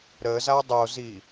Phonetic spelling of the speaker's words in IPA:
ɾ ə z a dˤ o z i

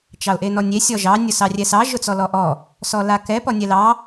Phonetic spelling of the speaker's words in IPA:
t͡ʃ ɑ ʊ̯ ʔ e n ɔ nʲ e sʲ ɔ ʒ ɑ nʲ ʊ s ɑ rʲ ɛ s ɑ ʒ ʊ t͡s ɔ l ɔ ʔ ɔ | s ɔ l a k ɛ p ɔ nʲ ɛ l ɑ

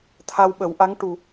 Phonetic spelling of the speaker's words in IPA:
t̪ʰ a˧ w ɓ ə˨˩˦ w ʔ a˧˥ ŋ ʈ u˨˩

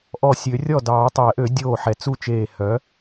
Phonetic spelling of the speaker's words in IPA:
ʔ ɔ˧˩ sʲ ø˨˩˦ rʲ ɔ˥˩ d ɑː˨˩˦ tˤ ɛ˨˩˦ ʔ ø˨˩˦ dʲ oː˧˩ ħ ɛ˨˩˦ t͡s u˥˩ t͡ʃ eː˧˩ h œ˩˥

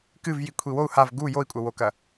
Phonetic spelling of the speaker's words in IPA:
k ɨ v j i kʷʰ i w o u̯ h a v ɡ u j o i̯ kʷʼ ɐ w o k ɐ

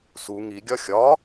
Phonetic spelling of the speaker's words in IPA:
s u ŋ i ɡʲ ɒ xʲ ɒ

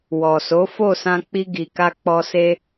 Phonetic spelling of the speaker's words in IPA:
w ɔ˨ s o˨˦ f o˦˨ s ã˧ k͡p i˧ ɡ i˨ k a˧ k͡p ɔ˧ s e˧

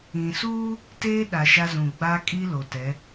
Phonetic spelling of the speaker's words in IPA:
ĩ˨ s uː˦ | t eː˦ ɗ a˨ ʃ a˦ z ũ˨ ɡ͡b a˦ kʼ i˦ l o˨ t ɛ˨˦

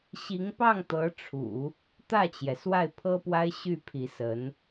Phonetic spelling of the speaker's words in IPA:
ɕ i˧˥ ŋ p ɑ˥˩ ŋ t̪ ɤ˧˥ ʈ͡ʂʰ ṵ˨˩˦ | t̪ ä˥˩ t͡ɕ j ɛ˩ s w a˥˩ ɪ̯ pʰ ɤ˥ p w a˥ ɪ̯ ɕ y˥˩ pʰ i˧˥ s ə˧˥ n

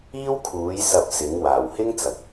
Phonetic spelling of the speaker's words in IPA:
iː˥ w kʰ uː˨˥ j s ɐ˧ p̚ s ɪ˨˥ ŋ w aː˨˩ w h ɪ˥ ŋ t͡s ɐ˨˥ k̚

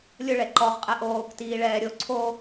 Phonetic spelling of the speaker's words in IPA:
lʲ ʊ ɭ ɛ ǃ ɔ ʁ qʼ ɛ ʔ oː k t iː ɭ ɛː ɾʲ o ǀʰ o

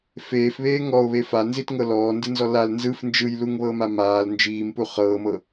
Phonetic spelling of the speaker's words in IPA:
f eː f β eː ŋ ɔ o̯ β e f a n z i t ŋ ɤ l ɔː n d ɯ n z ɔ l a l n z ɯ f n d͡ʒ ɯ j l u ŋ β ɤ m a m aː l n d͡ʒ iː m p u χ ɤː m ɤ

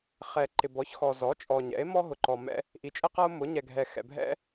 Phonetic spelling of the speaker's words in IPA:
χ ɛ˨ ǃ ɪ˨ b ɔ˩˥ ç x ɔ˨ z ɔ˩˥ t͡ʃʼ ɔ˨ ɲ ɛ̰˩˥ e̯ m ɔ˥ ɦ ʊ˨ ǃ ɔ˨ m ɛ̰˥ | ʔ i˨ t͡ʃʼ ɛ˥ q ʌ˥ o̯ m ʊ˩˥ ɲ ɛ˨ ɡʱ ɛ˨ x ɛ̰˨ bʱ ɛ̰˥

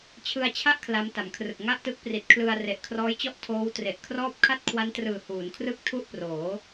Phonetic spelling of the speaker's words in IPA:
t͡ɕʰ ɯ˧ a̯ t͡ɕʰ a˥˩ ʔ kʰ l a˦˥ m t a˩˦ m kʰ r ɯ˨˩ k̚ ŋ a˥˩ ʔ t ɯ˦˥ k̚ p r i˨˩ t̚ kʰ l ɯ˧ a̯ r e˨˩ ʔ kʰ r ɔː˦˥ j t͡ɕ ɔ˥˩ ʔ tʰ oː˦˥ w t r e˨˩ ʔ kʰ r ɔː˥˩ p̚ kʰ a˥˩ t̚ kʰ w a˦˥ n t r ɯː˨˩ h uː˩˦ n kʰ r ɯ˥˩ k̚ tʰ u˥˩ ʔ p r oː˩˦

